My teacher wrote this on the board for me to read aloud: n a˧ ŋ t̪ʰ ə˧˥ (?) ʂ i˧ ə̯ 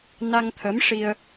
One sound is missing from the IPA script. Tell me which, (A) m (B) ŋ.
A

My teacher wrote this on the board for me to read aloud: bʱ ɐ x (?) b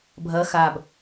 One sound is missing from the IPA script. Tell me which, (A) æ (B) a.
B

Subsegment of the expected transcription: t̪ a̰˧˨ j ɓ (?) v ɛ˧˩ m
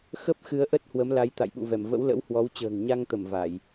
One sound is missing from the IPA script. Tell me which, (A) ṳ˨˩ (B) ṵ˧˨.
B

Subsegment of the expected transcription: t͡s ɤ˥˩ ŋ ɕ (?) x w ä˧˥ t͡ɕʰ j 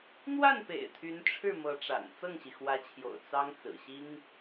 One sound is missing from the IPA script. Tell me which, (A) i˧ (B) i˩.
B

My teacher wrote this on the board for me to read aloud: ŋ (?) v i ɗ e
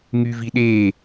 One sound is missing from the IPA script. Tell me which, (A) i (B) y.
B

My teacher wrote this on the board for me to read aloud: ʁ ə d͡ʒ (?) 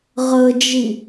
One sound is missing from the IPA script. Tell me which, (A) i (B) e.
A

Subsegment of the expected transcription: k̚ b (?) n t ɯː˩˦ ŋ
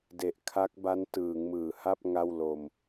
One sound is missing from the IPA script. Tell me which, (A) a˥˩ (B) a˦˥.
B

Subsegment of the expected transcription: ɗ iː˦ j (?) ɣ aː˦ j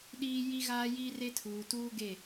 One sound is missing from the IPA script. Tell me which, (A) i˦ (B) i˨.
A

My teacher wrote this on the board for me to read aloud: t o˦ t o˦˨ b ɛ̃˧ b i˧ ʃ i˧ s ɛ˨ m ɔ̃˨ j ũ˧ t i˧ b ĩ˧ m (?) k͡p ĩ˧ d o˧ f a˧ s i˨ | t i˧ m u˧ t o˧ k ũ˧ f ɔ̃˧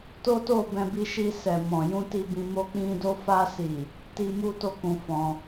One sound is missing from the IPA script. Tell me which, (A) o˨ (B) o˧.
B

